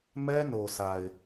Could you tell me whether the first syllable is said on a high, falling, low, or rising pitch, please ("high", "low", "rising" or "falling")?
high